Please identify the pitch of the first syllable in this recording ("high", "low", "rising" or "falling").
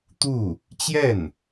falling